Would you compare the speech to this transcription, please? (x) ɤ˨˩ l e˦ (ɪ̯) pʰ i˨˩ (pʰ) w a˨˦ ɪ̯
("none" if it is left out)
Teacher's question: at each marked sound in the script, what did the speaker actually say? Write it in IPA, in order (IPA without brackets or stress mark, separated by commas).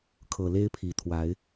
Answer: kʰ, ɪ̯, t̪ʰ